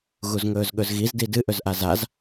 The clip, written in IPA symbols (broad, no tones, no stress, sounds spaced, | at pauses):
ɣ u z ŋ ɵː z ɠ ɵ z ɣ i z d i d ɨ ʔ ɵ z ʔ a z a z